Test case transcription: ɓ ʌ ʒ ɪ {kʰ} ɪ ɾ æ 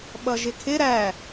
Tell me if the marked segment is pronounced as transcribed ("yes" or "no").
yes